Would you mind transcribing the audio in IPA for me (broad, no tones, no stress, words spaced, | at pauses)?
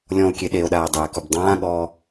lʲɔ̃o̯kʲe ɗeo̯ɗaːe̯dˤeːkub dˤãːɠɔː